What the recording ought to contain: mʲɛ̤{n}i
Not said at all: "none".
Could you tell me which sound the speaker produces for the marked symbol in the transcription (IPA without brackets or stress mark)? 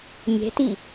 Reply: t